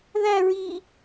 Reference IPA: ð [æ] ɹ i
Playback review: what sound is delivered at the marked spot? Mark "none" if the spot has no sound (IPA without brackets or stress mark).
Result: æ